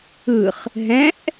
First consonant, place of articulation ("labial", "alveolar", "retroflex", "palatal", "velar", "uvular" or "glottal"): uvular